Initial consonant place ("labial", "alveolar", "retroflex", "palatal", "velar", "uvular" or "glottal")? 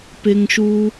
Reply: labial